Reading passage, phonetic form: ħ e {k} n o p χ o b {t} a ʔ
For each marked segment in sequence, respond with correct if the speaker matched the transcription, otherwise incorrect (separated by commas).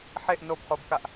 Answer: incorrect, incorrect